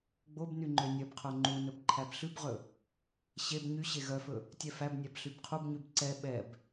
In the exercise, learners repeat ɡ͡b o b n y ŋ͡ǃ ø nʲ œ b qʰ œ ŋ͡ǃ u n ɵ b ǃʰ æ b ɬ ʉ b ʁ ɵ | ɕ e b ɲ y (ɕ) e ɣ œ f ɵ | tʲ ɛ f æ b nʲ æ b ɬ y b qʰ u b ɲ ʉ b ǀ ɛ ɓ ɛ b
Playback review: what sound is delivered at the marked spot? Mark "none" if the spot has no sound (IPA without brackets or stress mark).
ɕ